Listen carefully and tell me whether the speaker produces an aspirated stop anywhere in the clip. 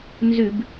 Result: no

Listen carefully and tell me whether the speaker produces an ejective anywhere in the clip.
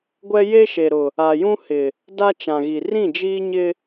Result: no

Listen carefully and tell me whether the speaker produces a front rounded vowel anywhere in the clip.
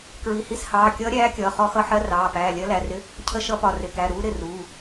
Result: no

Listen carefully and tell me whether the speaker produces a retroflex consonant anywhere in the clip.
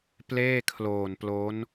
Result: no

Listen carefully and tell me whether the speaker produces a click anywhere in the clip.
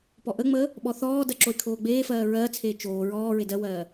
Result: yes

